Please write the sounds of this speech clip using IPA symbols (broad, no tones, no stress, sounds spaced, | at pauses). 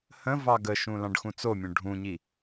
h ə̃ v ɑ ɡ ə ʃ ũ l ɑ̃ ɖ x ũ t͡s o mʲ õ ɖʱ ũ ɲ i